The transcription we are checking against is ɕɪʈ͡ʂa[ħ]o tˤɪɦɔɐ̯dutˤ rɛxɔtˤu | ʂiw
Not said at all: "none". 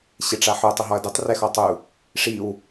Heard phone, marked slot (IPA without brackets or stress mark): ħ